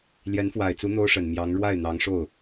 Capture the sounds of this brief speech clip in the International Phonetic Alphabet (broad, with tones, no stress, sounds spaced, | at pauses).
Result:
l j ɛ˧˥ n f w a˨˩ ɪ̯ t͡s u˧˥ n̪ o˥ ʊ̯ ʂ ə˨˩ n m j ɑ˧˥ ŋ ɻ w a˥˩ ɪ̯ n̪ ɑ˧˥ ŋ ʂ o˥˩ ʊ̯